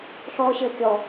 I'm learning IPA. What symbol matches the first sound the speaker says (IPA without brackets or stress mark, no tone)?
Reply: ɬ